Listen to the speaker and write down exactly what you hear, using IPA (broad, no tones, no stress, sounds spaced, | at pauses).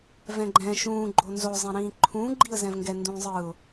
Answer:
v ɛ̃ ɡ͡ǃ ɛ̃ ʃ ũː ɡ͡ǃ o n z o zˤ ẽ ɾ ĩː ǃʰ ũː ɡ͡ǃ i ə̯ z ɛ̃ v ŋ ɡ ɛ n d ũː zˤ ɯː ʊ̯